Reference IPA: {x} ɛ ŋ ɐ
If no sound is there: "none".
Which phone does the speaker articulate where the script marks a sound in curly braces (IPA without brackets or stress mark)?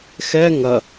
x